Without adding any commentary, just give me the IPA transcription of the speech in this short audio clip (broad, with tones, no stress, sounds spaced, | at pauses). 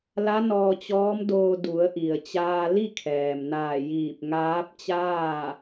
l a˧˥ n ɔː˧ t͡ɕ ɔː˧˥ m d oː˧ d u˩˧ ə̯ ʔ i˩ ə̯ t͡ɕ aː˧ l i˥˨ kʰ ɛː˩ m n aː˧˩ j iː˧˩ p̚ ŋ aː˧˥ p̚ t͡ɕ aː˥˨